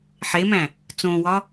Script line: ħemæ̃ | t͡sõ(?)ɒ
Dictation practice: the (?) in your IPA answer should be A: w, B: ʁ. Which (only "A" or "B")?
A